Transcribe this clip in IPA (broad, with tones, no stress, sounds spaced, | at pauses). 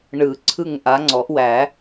ɳ ɯ˨˩˦ ǀʰ ɯ˦˨ ŋ ʔ a˨˦ ŋ͡ǀ ɔ˨˩˦ ʔ w æ˨˩˦